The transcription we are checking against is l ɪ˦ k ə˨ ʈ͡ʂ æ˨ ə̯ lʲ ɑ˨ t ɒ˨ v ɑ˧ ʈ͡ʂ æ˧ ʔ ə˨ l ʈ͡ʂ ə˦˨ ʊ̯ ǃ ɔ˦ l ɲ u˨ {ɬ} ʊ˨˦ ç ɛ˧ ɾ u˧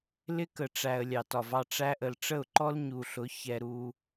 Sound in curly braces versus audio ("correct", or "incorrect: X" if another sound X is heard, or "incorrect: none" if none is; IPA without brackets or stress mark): correct